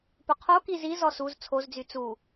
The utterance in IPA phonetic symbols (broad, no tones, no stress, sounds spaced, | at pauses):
p ɵ qʰ o k i z i z ɔ s u z t͡sʰ o z d͡z y t͡s u